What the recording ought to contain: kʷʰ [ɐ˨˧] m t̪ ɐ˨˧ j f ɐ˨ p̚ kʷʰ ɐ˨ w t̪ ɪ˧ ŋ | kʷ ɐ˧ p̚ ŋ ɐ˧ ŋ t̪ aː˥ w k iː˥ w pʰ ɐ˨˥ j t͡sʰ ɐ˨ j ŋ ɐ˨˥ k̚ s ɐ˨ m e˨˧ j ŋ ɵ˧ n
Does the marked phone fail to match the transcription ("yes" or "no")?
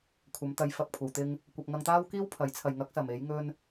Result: no